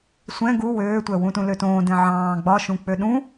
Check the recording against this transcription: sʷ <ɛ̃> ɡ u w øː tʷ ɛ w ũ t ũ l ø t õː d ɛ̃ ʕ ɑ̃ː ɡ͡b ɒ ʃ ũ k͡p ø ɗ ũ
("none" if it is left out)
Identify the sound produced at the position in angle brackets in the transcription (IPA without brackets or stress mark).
ɛ̃